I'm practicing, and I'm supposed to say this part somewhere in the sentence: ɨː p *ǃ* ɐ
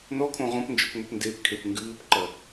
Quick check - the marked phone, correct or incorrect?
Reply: correct